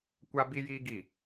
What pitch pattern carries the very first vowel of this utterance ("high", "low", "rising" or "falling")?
high